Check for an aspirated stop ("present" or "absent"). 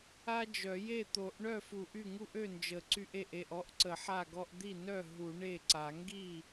absent